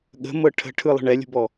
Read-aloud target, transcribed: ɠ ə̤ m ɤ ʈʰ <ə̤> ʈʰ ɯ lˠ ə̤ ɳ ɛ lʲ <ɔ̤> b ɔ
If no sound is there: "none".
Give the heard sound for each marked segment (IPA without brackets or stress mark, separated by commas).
ə̤, ə̤